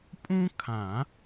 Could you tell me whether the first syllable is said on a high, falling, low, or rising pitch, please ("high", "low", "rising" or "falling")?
high